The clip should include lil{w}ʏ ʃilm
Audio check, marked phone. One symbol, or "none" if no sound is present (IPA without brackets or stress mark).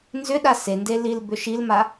b